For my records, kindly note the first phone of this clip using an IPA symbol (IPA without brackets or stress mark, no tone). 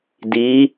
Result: d